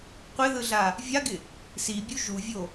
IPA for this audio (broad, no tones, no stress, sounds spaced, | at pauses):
qʷ ɪ ð ɯ ɮ a | vʲ a ɡ ɪ | s i bʲ u ʒ u vʲ o